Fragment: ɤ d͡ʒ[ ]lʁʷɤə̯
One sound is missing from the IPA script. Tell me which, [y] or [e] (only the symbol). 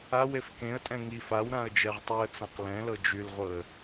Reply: y